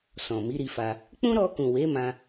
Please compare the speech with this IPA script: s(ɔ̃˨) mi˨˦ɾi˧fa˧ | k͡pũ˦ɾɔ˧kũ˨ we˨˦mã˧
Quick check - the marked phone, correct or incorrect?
correct